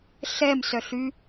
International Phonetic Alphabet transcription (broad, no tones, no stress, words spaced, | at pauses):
ɬɛmsœɬy